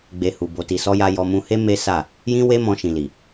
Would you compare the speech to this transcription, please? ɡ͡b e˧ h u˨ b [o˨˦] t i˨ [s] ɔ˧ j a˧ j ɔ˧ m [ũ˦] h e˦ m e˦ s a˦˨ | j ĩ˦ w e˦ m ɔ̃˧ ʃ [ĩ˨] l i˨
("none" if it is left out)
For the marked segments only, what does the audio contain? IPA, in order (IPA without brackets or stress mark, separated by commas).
o˨, s, ũ˧, ĩ˨